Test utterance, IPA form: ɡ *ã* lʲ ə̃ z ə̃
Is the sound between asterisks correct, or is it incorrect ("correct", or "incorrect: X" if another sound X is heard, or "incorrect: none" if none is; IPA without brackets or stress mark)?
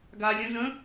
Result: incorrect: a